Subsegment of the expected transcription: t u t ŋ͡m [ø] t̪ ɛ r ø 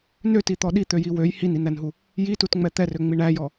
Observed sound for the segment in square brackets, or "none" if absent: ɛ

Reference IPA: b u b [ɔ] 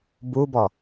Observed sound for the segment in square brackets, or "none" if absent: ɔ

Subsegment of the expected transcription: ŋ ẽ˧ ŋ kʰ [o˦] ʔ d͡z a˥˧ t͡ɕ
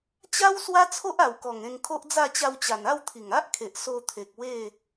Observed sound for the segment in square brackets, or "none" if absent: o˦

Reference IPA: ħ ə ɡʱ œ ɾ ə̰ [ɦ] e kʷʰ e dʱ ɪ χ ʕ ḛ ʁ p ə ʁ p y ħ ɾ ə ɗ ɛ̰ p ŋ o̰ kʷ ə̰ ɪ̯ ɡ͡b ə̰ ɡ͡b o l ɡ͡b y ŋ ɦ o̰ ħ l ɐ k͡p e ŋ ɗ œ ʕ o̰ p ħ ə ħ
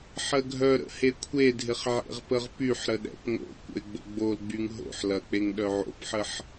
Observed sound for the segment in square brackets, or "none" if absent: h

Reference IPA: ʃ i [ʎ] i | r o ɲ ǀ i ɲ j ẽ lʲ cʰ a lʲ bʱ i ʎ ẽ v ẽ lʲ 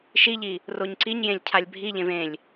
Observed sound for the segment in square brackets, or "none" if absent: ʎ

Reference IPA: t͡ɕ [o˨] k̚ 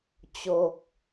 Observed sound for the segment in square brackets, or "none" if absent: o˦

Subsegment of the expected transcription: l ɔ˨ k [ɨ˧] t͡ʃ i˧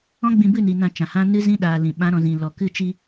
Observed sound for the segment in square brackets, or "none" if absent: ɨ˧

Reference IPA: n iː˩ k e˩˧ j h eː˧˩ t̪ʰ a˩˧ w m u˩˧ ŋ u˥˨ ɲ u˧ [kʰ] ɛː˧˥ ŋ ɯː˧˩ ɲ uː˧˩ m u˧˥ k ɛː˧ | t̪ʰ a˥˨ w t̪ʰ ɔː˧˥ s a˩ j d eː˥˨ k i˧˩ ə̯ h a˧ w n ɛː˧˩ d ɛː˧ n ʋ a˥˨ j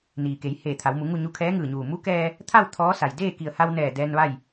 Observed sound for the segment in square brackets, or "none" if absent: kʰ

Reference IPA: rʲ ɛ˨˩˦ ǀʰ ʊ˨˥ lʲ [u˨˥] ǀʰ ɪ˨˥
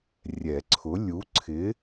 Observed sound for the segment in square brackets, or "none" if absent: u˨˥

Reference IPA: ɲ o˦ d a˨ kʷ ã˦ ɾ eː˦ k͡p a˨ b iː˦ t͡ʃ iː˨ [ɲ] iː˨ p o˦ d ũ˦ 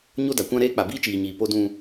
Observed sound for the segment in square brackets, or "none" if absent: ɲ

